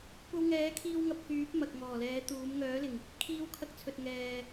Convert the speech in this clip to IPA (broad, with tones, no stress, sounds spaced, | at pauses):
kʷ ɐ˧ w ŋ ɛː˨˥ kʰ iː˧ w ŋ ɐ˨ p̚ k yː˨˥ p̚ m ɐ˨ k̚ ŋ ɔː˨˩ l ɛː˨˥ t̪ uː˨˥ m ŋ œː˨˥ l ɪ˨˩ ŋ | kʰ iː˧ w kʰ ɐ˧ k̚ t͡sʰ ɵ˨ t̚ ŋ ɛː˨